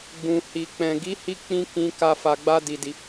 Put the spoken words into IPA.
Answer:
ɡ͡b ũ˨ h i˨ k͡p ɛ̃˨ ɡ i˨˦ h i˧ k͡p ĩ˧ k ĩ˦ k a˦ f a˧ ɡ͡b a˦ d i˧ d i˧

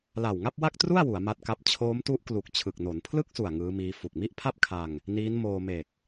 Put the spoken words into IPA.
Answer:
l a˨˩ w ŋ a˥˩ p̚ w a˥˩ k̚ t r u˥˩ a̯ w u˩˦ a̯ m a˦˥ t̚ k a˦˥ p̚ t͡ɕʰ oː˦˥ m t u˦˥ ʔ k l u˨˩ k̚ t͡ɕʰ ɯ˨˩ k̚ n o˩˦ n pʰ l ɯ˥˩ k̚ s u˨˩ a̯ ŋ ɯː˦˥ m iː˦˥ f u˨˩ k̚ m i˥˩ ʔ pʰ a˥˩ p̚ kʰ a˧ ŋ | n iː˦˥ n m oː˧ m e˨˩ k̚

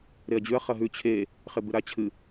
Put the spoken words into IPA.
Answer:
ɾ e ɐ̯ d͡ʑ ʉ ɐ̯ χ ɐ ɦ ʉ t͡ɕʰ e | χ e b ɨ ɾ a t͡ɕʰ ɨ

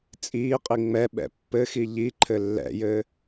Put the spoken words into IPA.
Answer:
t͡sʼ iː qʼ i ŋ͡m ɛ ɓ ɛ̰ pː ɘ x i ʎ i ǃʰ ɘ lː ɛ̰ j ɘː

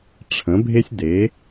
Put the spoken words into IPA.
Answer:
ʈ͡ʂʰ ə̃˩˧ bʱ e˧ sʲ d e˩˧

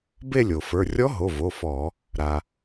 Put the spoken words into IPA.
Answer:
b e˥˧ lʲ o˩ f ə˞˩˧˩ rʲ ɔ˧˥ ɦ o˩˧˩ v o˩˧˩ f ɔ˧˩˧ | ɾ a˩

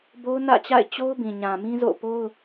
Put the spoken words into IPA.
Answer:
b o˦ ʊ̯ n ä̰˦˨ t͡ɕ a̰˦˨ ɪ̯ t͡ɕ o˦ ʊ̯ b ĩ˨ ɲ ã˨ m ĩ˦ z o̰˦˨ p o˦ ʊ̯

